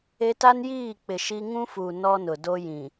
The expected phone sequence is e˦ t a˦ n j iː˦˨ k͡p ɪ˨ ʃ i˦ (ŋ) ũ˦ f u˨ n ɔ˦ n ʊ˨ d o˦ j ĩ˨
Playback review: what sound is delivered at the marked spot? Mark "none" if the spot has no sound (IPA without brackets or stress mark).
ŋ